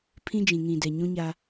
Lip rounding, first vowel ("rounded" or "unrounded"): unrounded